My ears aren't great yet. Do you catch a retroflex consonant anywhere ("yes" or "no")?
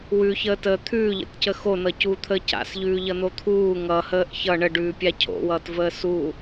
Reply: yes